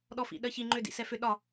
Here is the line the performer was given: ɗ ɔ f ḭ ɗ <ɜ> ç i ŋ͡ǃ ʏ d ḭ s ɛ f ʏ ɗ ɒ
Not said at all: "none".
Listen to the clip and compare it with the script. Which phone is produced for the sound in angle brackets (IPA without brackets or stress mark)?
ɜ